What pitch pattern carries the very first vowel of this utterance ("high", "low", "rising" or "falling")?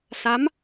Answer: rising